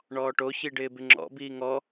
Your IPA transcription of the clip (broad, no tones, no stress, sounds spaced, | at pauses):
ɳ ɔː ʈ o ç i ɖ ɪː b ɪ ŋ͡ǁ ɔ̰ b iː ŋ ɔ